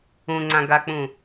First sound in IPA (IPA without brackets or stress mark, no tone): ũ